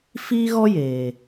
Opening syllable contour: high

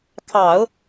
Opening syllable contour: low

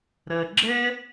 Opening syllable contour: low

